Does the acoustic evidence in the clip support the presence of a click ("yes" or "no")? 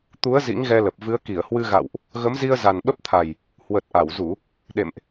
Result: no